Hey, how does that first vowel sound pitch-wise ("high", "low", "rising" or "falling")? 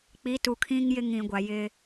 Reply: rising